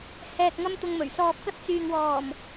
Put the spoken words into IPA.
hɛː˨k̚ŋɐ˧m t̪ʊ˧ŋmɵ˨˩ɥ sɔː˨p̚kɐ˧t̚ t͡syː˨ŋwɔː˨˩m

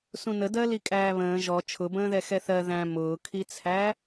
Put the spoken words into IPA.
sũnədɜ likʼæːβə̃ː ʒɔ t͡ʃʰʊbə̃ːðɛ xɛθɜ ðæ̃ mʊːkʰit͡sʰæ

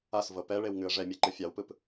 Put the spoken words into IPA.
asvɤ pɛɭewŋʉə̯ ʐɛmʲeǃɯ fʲawpɯp

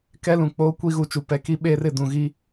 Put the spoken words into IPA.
kɛ˦lũ˨ k͡poː˦ kʷi˦ɣu˨t͡ʃu˨ pɛ˨ki˦ ɓeː˦rɪ˦˨ dũ˨ɣi˦

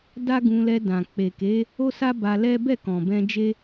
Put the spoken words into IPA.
da˦ɡũ˧lɛ˧ dã˨ k͡pe˨ke˨˦ | o˦sa˦ ba˧lɛ˦ bɛ˦˨kɔ̃˨bɛ̃˧ d͡ʒe˦

